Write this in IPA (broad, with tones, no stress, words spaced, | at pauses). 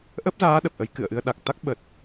ʔə˦˥p̚zaː˨˦ ɗə˨˩p̚ʔə˨˦j kɨ̰˧˨ə̯ʔɨ˧ə̯ ɗa˨˩k̚ t̪a˦˥k̚ ɓə˨˩t̚